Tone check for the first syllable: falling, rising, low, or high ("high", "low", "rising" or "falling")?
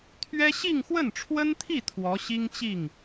high